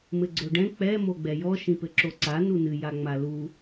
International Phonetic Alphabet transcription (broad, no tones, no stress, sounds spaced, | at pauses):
m ɘ ɡ͡ǀ o ɖ ɛ̃ k͡p ɛ m o ɡ͡b ɛ j ɔ ʃ ĩ p ɘ ǁ o ǀ a n u n ɨ j a ŋ͡m a l u